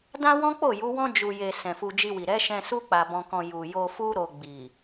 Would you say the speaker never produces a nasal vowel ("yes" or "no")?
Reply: no